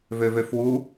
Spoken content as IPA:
vøvøfwu

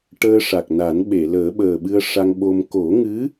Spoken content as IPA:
ʈəː˧ʂa˨˩k̚na˨˩˦nɓe˨˩˨ ləː˨˩˦ɓəː˨˩ɓɨ˧ə̯ʂa˧ŋ ɓo˧m ko˨˩˦ŋɨ˧˥

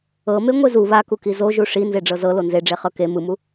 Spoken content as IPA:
ɤme ŋʷezu βakuki zoʒu ʂi nzeɖ͡ʐɤzɤ lonzeɖ͡ʐe χɤke mɯmu

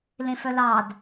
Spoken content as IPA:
lẽfœlɑd

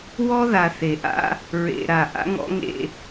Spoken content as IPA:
wɔ˦ða˨θe˨ʔa̰˦ | ɹḛ˨ ɾa˨ ʔa̰˦ŋɔ̰˦ŋḛ˦

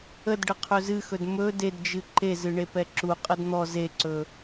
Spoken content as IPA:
ədɖə qʰɵzɨxɵd mɵ dedd͡ʒɨ ǃezɨ ɳepɛǁu qʼədn̪ɔ zeǀɵ

